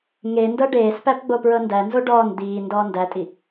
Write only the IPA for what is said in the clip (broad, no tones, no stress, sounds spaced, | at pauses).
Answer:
ŋ e n d ɤ ɖ eː s p æ p ɡ͡b o p ɹ ɤ n d æ n z o ɖ ɔː n d̪ iː n d ɔː n d æ tʼ i